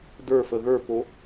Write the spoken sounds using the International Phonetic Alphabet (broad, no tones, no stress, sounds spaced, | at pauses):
d ə˞ f ə ɣ ə˞ p o